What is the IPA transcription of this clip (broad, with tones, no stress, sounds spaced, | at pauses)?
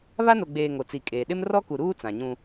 β a˦ n o˨ ɡ͡b eː˨ ŋ o˨ t͡s i˨ kʼ eː˨ ɗ ɪ˦ m r ɔ˦ k u˨ ɾ uː˦ t͡s ã˨ ɲ ũ˦